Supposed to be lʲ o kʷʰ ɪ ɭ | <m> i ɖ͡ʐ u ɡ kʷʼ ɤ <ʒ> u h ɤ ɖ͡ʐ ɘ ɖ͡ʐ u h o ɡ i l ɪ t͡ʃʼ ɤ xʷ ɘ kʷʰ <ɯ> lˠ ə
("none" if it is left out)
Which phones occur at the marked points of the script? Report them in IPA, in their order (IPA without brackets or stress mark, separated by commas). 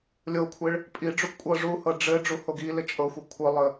pʼ, ʐ, ɯ